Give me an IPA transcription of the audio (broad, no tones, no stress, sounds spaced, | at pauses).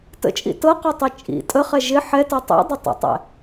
t ə̰ t͡ʃʼ ḭ t ɤ q ɤ tˤ i t͡ʃʼ ḭ tʼ ə χ ɛ ʒ ɪ ħ ɛ t ɤ tˤ ḭ dˤ ʊ tˤ ə̰ tˤ ɛ̰